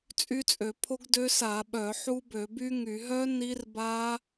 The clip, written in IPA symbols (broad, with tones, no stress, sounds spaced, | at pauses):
t͡sʼ y˦˥ t͡sʼ ø˧˩˧ pʰ o˦˥ ɡ d ø˦˥ s a˧˩˧ ɓ œ˧˩˧ ħ u˦˥ b ø˧˩˧ b y˦˥ ŋ y˧˩˧ ɦ œ˦˥ n i˦˥ r b a˦˥